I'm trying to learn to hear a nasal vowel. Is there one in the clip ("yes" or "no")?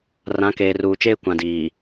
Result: yes